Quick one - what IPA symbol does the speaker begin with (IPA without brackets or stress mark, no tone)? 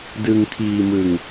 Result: d